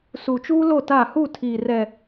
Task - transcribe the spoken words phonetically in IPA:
su˨t͡ʃuː˦ lo˦˨ta˦˨ hu˦˨tʰiː˨ rɛ˨

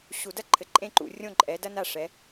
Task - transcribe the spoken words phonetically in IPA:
ɕu˧˩˧dɐ˥ ǃʰɘ˨˩ǃʼẽ˥˧ǃṵ˧˩˧ rʲõ˥˧ ǃʼɛ˨˦ dɐ˥na˥˩ ʂɛ˨˦

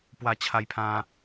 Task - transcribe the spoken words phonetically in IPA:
pwa˧t͡ɕʰa˧jpʰã˧

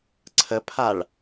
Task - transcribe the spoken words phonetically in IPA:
ǀʰəpʰaɭ

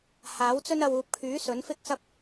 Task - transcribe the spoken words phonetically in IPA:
haː˨˥wt͡sɵ˥nɐ˧w uː˨p̚kʰyː˨˥ sɵ˨˥nfɪ˥k̚sɐ˥p̚

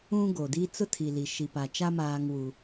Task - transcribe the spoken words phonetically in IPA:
ũ˦ ɡo˨di˦ t͡sʊ˦tʰi˨li˨ ʃi˨pa˨t͡ʃa˦ maː˦ŋwu˦

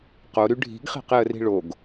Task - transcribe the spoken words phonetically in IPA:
qoɾy ɖʱi̤ɡχi̤qeə̯ri̤ ɭoɡ

